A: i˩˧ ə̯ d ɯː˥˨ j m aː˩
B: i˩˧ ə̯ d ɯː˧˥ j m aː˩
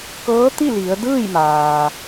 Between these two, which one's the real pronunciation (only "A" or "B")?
A